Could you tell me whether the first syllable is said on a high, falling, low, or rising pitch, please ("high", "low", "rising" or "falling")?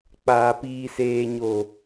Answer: low